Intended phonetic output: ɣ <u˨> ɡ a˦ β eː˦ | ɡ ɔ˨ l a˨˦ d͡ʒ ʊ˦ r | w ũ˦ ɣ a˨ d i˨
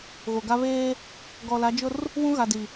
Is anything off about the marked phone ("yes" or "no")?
yes